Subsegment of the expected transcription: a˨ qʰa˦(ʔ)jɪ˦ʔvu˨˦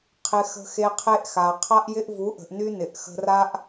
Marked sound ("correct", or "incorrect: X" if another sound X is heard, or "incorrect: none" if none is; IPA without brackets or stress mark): correct